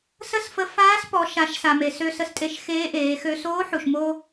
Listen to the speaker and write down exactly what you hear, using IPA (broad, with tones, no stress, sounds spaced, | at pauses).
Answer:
s ə˥ s f ə˧˥ f aː˧˥ s p ɔ˩˧ ʃ a˩˧ ʃ s a˩ m e˩ s ø˧ s ə˧ s tʼ e˧ ʃ x eː˧˥ ʔ eː˩˧ x ø˧ s oː˧˥ ħ u˩ ʃ m o˧